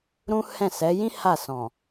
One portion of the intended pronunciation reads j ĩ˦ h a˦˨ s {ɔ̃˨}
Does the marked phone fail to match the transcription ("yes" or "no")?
no